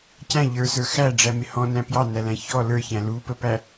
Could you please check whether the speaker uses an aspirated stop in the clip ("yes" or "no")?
no